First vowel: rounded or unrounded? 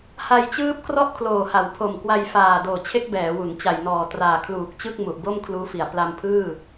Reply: unrounded